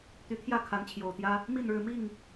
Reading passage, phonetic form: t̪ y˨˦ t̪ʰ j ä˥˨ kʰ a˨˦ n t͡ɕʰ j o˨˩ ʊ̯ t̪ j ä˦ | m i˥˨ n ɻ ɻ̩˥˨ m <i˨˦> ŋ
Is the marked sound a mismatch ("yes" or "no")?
yes